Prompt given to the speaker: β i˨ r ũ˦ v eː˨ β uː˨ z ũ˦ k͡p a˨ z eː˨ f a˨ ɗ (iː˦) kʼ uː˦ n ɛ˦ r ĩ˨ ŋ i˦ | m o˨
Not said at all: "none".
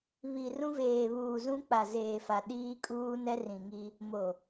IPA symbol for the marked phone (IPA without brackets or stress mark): iː˦